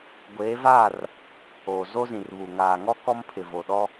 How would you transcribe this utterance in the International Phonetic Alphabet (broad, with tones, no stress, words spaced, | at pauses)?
ɡʷeː˨˦vaː˦˨r | oː˨ zo˦zĩ˨rβu˨ ŋaː˨ŋɔ˦ kɔ˦mpʰɪ˨vo˨ɗɔ˦